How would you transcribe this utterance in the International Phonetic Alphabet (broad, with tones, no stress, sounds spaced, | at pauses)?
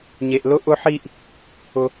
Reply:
ɲ e˦ ʔ l ʊ˥ ʔ ʊ˦ ħ i˦ ʔ | ʊ˥